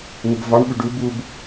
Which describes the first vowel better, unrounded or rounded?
rounded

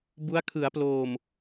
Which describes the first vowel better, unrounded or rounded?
rounded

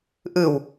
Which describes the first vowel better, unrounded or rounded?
unrounded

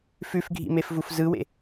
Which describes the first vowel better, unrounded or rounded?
rounded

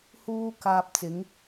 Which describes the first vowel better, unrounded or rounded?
rounded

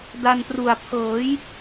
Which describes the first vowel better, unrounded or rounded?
unrounded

